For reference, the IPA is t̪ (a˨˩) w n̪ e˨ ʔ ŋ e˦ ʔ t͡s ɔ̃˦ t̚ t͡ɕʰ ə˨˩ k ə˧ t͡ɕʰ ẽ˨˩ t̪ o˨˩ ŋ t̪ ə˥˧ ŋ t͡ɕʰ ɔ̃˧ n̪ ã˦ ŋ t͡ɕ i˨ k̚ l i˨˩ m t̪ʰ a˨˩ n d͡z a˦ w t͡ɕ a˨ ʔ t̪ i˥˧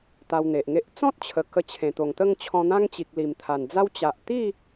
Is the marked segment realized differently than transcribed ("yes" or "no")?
yes